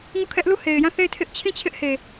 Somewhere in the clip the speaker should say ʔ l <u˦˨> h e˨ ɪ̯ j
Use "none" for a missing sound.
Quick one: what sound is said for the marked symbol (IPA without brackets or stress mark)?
u˦˨